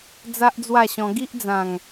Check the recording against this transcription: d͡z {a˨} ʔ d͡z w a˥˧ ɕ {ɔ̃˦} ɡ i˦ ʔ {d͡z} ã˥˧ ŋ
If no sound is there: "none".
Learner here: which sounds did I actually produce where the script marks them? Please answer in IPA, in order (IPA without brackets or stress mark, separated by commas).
a˦, ɔ̃˧, d͡z